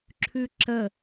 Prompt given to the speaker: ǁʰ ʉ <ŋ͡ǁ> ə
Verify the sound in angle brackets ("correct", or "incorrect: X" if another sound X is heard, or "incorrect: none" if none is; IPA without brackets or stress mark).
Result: incorrect: ǁ